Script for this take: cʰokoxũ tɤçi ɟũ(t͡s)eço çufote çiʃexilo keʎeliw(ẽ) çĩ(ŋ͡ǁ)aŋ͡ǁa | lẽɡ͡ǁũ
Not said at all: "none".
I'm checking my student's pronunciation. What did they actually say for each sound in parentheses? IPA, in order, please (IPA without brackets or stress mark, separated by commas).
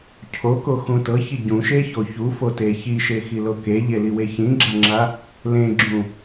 ʃ, e, ɡ͡ǁ